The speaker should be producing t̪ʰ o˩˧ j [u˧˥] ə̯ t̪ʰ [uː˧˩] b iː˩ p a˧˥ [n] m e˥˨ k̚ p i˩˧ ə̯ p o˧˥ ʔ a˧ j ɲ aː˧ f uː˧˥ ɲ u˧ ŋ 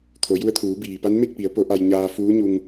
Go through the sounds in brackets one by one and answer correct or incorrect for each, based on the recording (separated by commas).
incorrect, incorrect, correct